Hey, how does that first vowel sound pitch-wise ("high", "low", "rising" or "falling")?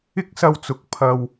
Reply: high